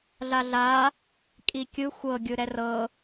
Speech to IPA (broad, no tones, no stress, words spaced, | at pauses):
ɮaɮa | kʼikʲɯ xʷɤɡʲɯ ɾɛrɤ